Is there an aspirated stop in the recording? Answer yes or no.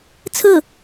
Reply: yes